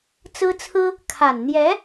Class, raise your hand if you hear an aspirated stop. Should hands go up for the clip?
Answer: yes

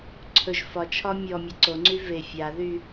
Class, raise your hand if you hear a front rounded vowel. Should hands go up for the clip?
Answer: yes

